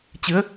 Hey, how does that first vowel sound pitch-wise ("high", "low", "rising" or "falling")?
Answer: rising